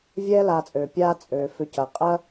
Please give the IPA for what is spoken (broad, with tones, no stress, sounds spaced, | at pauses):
vʲ ɛː˦ l aː˨ t͡sʼ øː˩ pʲ aː˦ t͡sʼ øː˩ f ʏ˨ c ɐ˩ qʼ ɐ˥